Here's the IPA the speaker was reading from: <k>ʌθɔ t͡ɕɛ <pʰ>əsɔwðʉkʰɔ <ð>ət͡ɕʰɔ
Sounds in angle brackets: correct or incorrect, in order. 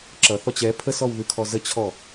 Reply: incorrect, correct, incorrect

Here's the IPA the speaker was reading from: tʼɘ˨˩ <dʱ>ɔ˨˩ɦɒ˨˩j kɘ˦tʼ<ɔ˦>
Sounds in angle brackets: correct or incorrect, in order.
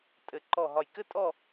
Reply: incorrect, incorrect

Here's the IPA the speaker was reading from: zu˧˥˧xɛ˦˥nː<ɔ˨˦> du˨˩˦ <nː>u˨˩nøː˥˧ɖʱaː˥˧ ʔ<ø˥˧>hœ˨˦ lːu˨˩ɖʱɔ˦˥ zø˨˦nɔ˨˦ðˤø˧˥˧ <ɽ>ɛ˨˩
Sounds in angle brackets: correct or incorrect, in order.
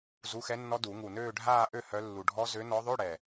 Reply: incorrect, incorrect, correct, correct

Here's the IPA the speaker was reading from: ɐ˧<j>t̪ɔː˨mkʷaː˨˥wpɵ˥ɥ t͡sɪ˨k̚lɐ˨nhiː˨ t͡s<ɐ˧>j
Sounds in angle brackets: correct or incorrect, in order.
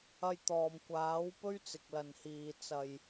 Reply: correct, incorrect

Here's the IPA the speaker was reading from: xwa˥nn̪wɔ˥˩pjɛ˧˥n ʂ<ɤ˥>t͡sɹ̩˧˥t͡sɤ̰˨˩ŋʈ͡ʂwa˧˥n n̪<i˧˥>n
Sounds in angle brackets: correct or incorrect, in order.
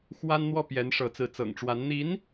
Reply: incorrect, correct

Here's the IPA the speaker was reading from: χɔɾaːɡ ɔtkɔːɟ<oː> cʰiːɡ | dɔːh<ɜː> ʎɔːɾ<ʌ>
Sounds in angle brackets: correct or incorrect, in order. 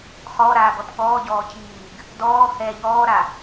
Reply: incorrect, incorrect, incorrect

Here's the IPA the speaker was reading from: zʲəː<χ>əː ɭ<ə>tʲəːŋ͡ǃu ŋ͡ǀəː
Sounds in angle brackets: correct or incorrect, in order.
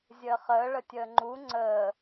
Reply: correct, correct

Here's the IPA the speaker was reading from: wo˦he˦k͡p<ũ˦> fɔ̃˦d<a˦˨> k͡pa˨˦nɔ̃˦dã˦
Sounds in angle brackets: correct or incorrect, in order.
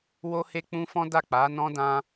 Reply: correct, correct

